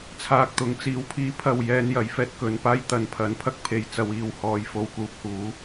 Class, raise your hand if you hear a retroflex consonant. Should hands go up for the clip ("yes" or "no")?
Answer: no